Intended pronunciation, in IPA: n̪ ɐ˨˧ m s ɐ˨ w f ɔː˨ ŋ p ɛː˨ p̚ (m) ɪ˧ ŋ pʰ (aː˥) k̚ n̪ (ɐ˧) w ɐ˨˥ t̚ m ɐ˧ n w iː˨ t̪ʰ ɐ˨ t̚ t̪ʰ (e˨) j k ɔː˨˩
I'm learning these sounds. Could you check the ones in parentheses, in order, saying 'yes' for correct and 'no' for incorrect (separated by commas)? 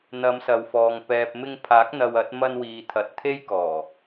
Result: yes, no, yes, no